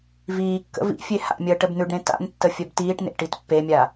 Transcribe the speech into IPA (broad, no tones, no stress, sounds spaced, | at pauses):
v iː kː ə̰ v ḭ fʲ e h a̰ mʲ əː ʈ ə b n̪ ʉ ɖ ɾ ẽ t a̰ n tː ə fʲ œ b t iː ʈ n ḛ ʈ i t pː e mʲ a